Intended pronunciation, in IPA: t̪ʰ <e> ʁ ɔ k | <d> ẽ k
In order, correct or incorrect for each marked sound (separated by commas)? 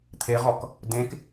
correct, correct